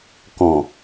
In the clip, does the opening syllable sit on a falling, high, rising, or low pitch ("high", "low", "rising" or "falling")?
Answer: low